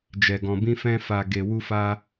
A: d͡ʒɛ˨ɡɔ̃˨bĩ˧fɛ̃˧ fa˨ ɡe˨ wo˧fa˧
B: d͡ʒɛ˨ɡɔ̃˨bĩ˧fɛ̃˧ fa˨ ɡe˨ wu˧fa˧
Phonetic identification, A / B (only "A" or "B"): B